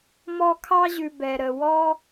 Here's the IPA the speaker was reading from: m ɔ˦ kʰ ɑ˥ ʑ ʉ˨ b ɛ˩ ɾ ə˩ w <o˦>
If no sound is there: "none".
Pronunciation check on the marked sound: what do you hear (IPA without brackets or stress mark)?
ɔ˦